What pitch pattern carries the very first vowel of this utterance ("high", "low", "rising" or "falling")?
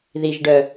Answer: low